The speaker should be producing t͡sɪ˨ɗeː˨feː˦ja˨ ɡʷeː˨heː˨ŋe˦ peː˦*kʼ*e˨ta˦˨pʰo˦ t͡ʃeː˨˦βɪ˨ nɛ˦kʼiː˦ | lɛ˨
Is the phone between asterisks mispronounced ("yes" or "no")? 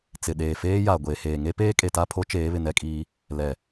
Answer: no